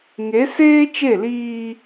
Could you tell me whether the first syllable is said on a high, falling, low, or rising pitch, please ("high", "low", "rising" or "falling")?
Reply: rising